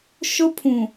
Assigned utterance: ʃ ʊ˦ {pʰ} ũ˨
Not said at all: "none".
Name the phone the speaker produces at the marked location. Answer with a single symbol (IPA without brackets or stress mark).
pʰ